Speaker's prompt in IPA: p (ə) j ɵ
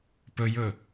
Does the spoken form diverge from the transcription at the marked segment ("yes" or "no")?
yes